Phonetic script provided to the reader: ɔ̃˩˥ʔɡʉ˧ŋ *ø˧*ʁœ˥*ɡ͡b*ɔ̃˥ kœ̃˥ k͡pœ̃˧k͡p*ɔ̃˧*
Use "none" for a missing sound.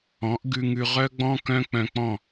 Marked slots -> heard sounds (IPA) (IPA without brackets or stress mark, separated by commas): ʉ˧, ɡ͡b, ɔ̃˥˩